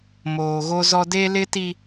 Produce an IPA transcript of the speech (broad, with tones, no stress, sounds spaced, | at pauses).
m oː˨ ɣ o˦ z ɔ˦ d e˦ l ɪ˦ t i˦